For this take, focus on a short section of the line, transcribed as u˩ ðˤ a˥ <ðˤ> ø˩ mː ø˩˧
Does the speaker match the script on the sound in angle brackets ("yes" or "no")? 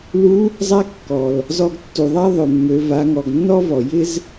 yes